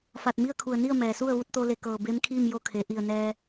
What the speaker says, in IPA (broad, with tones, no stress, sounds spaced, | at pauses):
f a˧˩ t̚ m i˥˨ ə̯ kʰ u˧˩ ə̯ n i˥˨ ə̯ m ɛː˩ s u˥˨ ə̯ ʋ u˥˨ t̚ t̪ o˧ l e˧˩ k ɤː˧˩ b e˧˥ m kʰ iː˥˨ m j o˧˥ kʰ e˩˧ ʔ i˧˩ ə̯ n ɛː˧